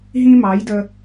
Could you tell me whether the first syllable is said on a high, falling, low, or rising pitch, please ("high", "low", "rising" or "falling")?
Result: high